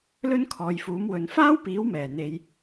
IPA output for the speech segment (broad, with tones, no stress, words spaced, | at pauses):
lɵ˥nkʰɔː˨jfuː˨˥mwɵ˨˧n faː˥wpiː˨˥wmɛː˨˩ n̪e˨˧j